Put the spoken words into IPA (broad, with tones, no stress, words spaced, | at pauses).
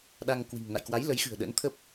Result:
ɗa˧ŋkwi̤˨˩ŋ na̰˧˨jkwa˨˦jlə˨˦jxɨ̤˨˩ə̯ ɗə̰˧˥nt̪ʰə˦˥p̚